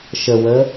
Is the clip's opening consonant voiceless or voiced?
voiceless